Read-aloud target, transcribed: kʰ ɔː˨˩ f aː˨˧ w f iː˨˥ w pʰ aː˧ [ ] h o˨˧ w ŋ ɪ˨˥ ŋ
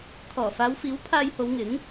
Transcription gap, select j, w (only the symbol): j